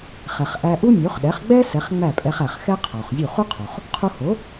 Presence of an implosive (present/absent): present